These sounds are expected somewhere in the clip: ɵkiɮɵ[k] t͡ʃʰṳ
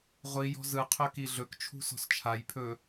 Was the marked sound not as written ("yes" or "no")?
no